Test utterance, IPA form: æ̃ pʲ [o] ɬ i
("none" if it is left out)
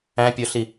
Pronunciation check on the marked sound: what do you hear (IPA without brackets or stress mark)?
o